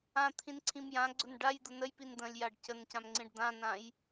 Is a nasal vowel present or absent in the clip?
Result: present